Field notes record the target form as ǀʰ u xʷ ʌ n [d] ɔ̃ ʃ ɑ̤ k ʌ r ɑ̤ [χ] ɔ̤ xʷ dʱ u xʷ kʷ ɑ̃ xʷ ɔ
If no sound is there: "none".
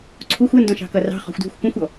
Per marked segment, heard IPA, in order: d, χ

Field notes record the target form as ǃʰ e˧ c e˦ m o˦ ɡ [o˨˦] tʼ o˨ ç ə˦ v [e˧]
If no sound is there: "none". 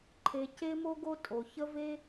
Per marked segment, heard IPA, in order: o˦, e˦

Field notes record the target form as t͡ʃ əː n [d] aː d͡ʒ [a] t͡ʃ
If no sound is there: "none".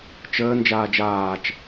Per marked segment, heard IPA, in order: d͡ʒ, aː

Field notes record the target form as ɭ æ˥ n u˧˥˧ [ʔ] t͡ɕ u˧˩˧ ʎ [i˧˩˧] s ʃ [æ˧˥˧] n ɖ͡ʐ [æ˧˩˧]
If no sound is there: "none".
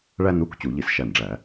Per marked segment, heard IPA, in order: k, i˧˩˧, æ˧˩, æ˧˩˧

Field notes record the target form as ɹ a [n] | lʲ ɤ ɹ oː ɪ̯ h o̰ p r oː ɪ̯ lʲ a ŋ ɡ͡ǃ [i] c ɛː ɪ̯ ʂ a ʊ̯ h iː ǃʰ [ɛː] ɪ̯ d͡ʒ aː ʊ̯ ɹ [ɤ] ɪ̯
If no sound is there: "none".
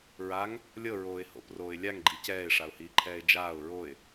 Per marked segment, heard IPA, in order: ŋ, i, ɛː, o

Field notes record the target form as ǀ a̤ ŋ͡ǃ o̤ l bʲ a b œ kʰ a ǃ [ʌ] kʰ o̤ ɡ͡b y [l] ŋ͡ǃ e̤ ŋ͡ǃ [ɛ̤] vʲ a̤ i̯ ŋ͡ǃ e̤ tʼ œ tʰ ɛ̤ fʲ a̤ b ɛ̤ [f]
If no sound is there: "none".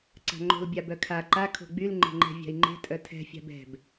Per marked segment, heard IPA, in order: a, l, ɛ̤, b

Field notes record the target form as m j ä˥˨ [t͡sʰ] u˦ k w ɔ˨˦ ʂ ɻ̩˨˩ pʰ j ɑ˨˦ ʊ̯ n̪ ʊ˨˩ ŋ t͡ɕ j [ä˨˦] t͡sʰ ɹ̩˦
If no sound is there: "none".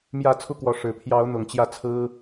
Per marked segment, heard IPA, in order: t͡sʰ, ä˥˨

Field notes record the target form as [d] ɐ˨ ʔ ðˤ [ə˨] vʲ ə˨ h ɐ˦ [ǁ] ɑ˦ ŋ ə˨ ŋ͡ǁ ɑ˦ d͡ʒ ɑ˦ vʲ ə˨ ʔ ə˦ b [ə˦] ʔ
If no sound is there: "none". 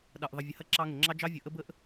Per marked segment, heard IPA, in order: ɗ, ə˨, ǁ, ə˦

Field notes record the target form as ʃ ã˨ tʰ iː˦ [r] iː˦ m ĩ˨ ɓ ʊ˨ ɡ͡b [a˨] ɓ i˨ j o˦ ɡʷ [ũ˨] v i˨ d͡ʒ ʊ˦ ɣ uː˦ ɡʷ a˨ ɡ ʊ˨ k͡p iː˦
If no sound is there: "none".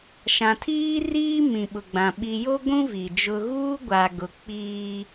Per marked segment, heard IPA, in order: r, ã˨, ũ˦

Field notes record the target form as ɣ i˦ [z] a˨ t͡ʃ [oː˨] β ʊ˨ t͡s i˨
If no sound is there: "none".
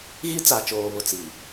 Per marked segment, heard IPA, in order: t͡s, oː˨

